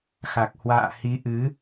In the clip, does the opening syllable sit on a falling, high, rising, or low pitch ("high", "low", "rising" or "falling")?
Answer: low